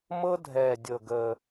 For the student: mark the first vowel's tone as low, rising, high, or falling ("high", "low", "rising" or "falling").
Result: high